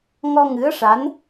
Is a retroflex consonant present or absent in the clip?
present